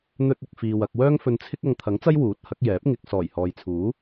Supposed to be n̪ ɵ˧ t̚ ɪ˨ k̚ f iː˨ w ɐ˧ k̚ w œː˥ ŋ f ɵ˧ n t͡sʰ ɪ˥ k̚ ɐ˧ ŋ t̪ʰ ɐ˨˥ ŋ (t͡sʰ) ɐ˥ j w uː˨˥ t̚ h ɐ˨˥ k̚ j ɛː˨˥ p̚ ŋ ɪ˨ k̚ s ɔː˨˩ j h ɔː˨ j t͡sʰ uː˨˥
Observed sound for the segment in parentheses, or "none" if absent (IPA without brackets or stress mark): t͡s